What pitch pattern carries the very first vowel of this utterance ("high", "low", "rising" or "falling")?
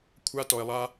high